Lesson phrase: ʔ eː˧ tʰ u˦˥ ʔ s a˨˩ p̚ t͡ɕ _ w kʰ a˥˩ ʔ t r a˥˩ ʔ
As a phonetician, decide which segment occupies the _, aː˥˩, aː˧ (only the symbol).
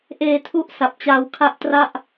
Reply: aː˧